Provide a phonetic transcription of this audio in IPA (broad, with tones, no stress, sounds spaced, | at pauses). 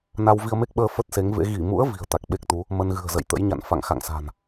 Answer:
n a˧ w v i˧ ə̯ m e˦˥ k̚ ɓ əː˧ f ə˦˥ t̚ s e˨˦ ŋ v ḛ˧˥ ɣ i˧˩ m ṵ˧˥ ə̯ v i̤˨˩ ə̯ t̪ a˨˩ k̚ ɓ e˦˥ k̚ t̪ u˨˦ | m ə˧ n ɣ ɨ̤˨˩ ə̯ z ə̰˧˨ j t̪ ə̰˧˥ j ɲ a̰˧˨ n f a̰˧˨ ŋ x a̰˧˨ ŋ s a̤˨˩ n